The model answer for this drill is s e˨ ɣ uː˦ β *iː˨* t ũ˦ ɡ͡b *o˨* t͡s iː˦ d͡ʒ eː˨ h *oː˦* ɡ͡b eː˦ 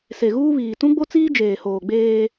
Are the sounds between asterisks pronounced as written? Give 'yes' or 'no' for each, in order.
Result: yes, no, no

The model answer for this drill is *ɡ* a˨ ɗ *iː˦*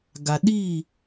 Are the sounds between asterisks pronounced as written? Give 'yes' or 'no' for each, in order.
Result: yes, no

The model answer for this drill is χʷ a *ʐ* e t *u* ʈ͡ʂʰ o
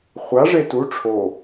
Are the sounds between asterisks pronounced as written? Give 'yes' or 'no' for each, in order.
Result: yes, yes

